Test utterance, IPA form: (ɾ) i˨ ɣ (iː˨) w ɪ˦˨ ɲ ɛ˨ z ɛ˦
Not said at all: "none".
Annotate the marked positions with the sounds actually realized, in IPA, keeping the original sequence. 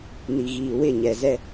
n, iː˨

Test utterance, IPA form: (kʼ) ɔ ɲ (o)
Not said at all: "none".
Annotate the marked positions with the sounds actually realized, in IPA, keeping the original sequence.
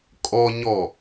kʼ, ɔ

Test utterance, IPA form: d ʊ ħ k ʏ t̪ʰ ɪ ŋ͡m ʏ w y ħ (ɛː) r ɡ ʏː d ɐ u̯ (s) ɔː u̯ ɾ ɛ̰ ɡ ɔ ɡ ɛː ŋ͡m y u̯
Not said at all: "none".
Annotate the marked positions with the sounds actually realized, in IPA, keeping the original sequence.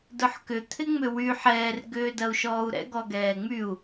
ɛː, ʃ

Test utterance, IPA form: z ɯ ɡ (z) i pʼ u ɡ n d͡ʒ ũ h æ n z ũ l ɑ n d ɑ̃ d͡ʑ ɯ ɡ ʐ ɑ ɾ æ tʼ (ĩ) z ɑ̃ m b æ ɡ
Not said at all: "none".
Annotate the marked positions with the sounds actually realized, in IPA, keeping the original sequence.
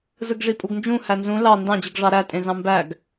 ʐ, ẽ

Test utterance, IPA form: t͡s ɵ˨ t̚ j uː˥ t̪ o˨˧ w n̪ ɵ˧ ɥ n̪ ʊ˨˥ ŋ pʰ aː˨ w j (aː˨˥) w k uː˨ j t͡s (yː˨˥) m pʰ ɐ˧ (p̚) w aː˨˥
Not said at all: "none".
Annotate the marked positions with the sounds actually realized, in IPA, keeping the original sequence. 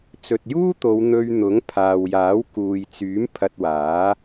aː˨˥, yː˨˥, t̚

